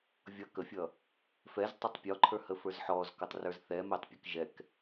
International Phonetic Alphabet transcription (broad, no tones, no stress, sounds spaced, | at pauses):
vʲ ʌ k ə fʲ ʌ | f ɛ z tˤ ʊ tˤ pʲ ɔ ǃʰ ə˞ h ə f ə˞ z ħ ɔ z k ʌ tˤ r ə˞ z θ ɛ m ɛ tˤ pʲ ʌ k ʒ ɛ k